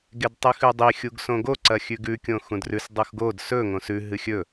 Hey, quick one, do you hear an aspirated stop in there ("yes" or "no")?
no